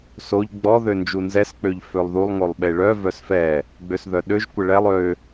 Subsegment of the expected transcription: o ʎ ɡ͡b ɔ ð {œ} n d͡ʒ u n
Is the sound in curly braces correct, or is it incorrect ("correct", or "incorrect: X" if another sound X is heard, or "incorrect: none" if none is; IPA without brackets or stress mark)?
incorrect: ø